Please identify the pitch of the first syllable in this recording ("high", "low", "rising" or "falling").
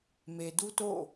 low